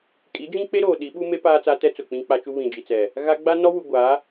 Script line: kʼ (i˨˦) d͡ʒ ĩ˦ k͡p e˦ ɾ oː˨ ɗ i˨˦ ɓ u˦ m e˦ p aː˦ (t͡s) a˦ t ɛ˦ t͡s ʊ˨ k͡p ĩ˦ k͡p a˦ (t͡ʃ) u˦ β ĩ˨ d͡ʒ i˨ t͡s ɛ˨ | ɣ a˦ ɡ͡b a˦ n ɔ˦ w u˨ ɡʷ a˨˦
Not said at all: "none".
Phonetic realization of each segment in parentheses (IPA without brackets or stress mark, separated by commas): i˨˦, t͡s, t͡ʃ